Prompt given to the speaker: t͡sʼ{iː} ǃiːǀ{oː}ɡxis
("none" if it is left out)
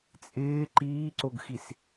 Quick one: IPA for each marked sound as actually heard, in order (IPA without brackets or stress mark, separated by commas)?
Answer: ɪː, o